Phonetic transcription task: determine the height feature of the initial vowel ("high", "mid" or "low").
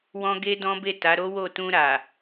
mid